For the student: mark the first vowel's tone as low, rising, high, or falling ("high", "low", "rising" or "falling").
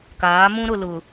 rising